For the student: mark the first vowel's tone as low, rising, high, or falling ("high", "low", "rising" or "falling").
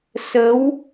rising